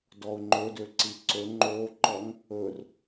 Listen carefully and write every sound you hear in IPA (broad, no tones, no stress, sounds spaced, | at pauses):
d ɔ ʊ̯ ŋ͡ǃ ɵ d ø ǀ i ǀ ɵ ŋ͡ǃ o ǃ ɔ ŋ | ɵ r